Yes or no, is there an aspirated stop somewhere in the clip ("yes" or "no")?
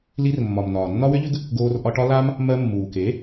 no